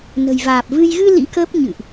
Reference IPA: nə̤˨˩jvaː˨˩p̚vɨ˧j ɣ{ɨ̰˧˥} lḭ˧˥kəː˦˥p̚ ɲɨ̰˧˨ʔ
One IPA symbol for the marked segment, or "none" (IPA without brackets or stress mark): ɨ˧